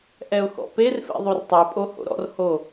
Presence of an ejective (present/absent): present